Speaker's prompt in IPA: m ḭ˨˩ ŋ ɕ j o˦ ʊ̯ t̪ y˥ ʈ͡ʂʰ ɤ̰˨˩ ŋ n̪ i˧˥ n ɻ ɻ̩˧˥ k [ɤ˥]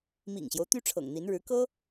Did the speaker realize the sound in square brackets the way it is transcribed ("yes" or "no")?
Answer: yes